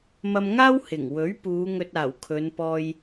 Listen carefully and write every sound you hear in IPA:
mɐ˧mŋaː˥w hɪ˨˩ŋwɵ˨˥ɥpuː˨˧ ŋɵ˧t̚aː˨˩w kʰɵ˨˧npɔː˧j

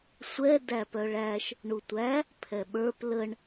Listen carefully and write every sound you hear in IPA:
sʷɛ dæpœɭæʃ | ɳutʷæ | pʰɛɓə˞p ləɳ

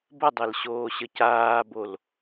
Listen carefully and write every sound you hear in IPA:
bədˤel ɕoːɕəcaːbol

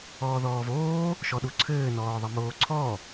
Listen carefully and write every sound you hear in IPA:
ɔːðɔːvoː | ʃɔɗuǀʰɘː nɔːðˤɐmoːǀʰɔ

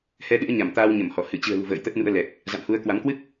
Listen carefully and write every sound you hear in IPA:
hɛ˧ɗɨ̰˧˥ə̯ ɲa˧˩mt̪aː˧wɲə˧˩mhɔ˧˩ hɨ˧˩t͡ɕɨ̤˨˩ə̯lṳ˨˩ və̰ː˧˨jt̪ə˦˥t̚nṵ˧˥ə̯lɛ˨˩k̚ | za̰˧˨mhu˨˦ə̯kwa˨˦m kwɨ˦˥k̚

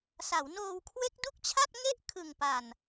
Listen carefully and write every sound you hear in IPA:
sa˩˦wnoː˧w kʰwe˦˥k̚du˥˩k̚t͡ɕʰa˥˩t̚ ŋe˦˥ʔ kʰɯ˨˩ŋpa˨˩n

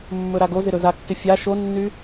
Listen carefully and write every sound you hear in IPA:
mːɵɾaɡozɪ ɾɵzakːɪ fʲa ʃonːy

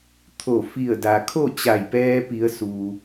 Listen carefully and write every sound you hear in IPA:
t̪ʰo˧˩fi˧˩ə̯da˩kʰo˥˨ t͡ɕa˧˩jpɛː˧pi˩˧ə̯ su˩

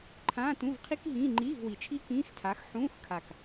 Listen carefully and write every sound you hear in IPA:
ǃʰãː˧˥˧tũ˧˥˧vqʰi˥k ɦĩː˧˥˧ ŋ͡ǃiː˧˥˧vwi˨˩t͡ʃʰi˥ kĩː˧˥˧xtʰa˨˥x ħũː˧˥˧xkʰa˨˩k

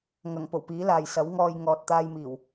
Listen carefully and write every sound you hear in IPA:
ŋɐ˨˩ŋ po˨˩wpiː˨˥laː˨j sɐ˨˥wŋɔː˧j ŋɔː˨t̚t̪aː˧jmiː˨˩w

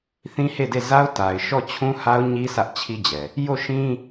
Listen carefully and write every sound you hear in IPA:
θĩ˦he˦˨de˦˨ za˦ʊ̯ta˨ɪ̯ʃɔ˦˨ t͡ɕʰũ˦ha˦ʊ̯ɲi˦ sä˦ʔt͡ɕʰi˦d͡ʑɛ˨ | jo˦˨ʃĩ˦

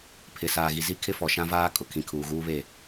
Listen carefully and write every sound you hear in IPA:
pʰɪ˨ saː˨ɣi˨ zi˦kʰɪ˦fɔ˨ ʃã˦vaː˦kʼʊ˨ kʰĩ˨kʰuː˨ɣuː˦βe˦˨

